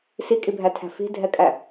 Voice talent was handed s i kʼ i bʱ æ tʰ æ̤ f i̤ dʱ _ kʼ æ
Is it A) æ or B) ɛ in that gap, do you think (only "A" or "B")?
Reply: B